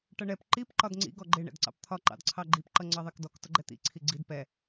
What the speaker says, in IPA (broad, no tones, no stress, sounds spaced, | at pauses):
ʈ ʌ ɳ ɛ p ǃ i p ǃ ɒ d ŋ͡ǀ ḭ ɡ ɔ ɡ͡ǃ ɪ ɳ ɛ̰ d ǀ ɑ̰ p t̪ʰ ɒ ǃ ɑ̰ d ǀʰ ɑ ɡ͡ǃ i p ǃ ʌ ŋ͡ǀ ɑ ðˤ ɛ k d ɔ k t ʊ ɡ͡ǃ ɛ t̪ ḭ ǀʰ i ɡ͡ǀ i d p ɛ